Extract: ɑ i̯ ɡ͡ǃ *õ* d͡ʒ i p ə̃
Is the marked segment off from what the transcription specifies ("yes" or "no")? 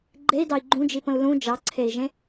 yes